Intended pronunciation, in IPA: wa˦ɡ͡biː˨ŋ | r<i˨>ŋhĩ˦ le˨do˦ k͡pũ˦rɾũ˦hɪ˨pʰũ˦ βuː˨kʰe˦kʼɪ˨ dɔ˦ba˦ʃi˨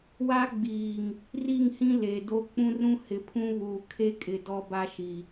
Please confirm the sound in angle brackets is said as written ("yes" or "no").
no